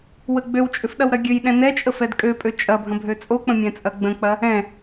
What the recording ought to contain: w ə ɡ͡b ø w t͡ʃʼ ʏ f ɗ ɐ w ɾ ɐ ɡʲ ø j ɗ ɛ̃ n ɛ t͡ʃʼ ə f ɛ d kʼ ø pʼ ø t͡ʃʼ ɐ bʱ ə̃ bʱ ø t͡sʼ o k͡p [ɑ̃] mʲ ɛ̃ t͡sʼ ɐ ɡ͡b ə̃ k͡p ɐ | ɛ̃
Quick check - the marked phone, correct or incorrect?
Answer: incorrect: ə̃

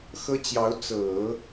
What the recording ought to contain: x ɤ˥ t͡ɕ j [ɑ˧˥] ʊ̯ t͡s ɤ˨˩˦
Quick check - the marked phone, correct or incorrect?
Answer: correct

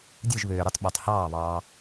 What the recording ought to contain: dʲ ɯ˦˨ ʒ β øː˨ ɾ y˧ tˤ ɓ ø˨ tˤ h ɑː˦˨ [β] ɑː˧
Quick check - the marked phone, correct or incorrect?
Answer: correct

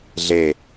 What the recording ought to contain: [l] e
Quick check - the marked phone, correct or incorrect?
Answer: incorrect: ɮ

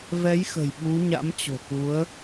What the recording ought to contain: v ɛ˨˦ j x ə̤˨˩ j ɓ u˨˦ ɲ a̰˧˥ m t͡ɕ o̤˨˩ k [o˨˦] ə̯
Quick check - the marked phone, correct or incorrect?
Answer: incorrect: u˨˦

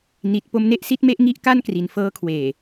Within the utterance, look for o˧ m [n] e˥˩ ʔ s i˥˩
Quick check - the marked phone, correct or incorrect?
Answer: correct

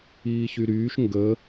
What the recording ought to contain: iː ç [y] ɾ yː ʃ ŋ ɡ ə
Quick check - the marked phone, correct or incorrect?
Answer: correct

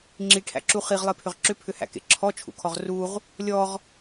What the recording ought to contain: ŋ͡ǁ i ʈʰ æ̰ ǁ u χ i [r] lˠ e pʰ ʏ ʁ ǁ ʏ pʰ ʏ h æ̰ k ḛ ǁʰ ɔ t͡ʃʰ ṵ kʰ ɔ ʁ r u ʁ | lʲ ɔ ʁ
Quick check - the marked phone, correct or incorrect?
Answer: incorrect: ʁ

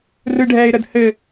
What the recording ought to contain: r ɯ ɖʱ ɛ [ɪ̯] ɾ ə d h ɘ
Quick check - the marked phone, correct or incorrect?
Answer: correct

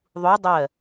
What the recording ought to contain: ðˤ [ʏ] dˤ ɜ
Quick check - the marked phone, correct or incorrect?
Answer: incorrect: u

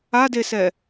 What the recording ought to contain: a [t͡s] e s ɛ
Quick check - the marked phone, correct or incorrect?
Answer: incorrect: d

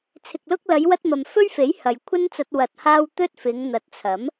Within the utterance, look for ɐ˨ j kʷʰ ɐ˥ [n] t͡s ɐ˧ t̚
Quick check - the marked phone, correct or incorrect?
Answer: correct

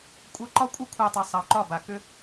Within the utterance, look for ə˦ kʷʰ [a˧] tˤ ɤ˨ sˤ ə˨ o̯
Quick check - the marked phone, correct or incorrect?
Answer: correct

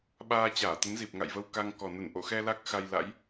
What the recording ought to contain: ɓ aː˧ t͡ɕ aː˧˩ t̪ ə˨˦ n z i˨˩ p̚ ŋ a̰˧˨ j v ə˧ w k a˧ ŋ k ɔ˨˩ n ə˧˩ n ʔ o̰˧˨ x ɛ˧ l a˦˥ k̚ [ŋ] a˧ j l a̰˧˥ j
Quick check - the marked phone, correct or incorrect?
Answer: incorrect: x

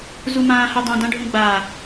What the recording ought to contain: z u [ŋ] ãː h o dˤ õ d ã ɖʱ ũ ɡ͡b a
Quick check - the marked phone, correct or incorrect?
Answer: incorrect: m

